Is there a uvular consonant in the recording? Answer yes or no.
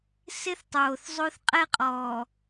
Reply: yes